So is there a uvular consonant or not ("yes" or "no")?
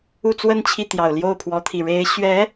no